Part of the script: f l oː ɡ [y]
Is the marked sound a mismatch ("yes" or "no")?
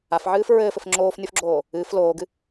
yes